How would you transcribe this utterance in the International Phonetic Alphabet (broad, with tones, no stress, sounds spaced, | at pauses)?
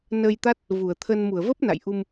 n əː˧ j t̪ a˦˥ t̚ | v u˧˩ ə̯ t̪ʰ ə˧ n m u˧˩ ə̯ v ə˦˥ p̚ n a̰˧˨ j ʔ u˧ m